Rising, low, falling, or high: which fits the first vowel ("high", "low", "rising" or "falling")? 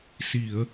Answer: low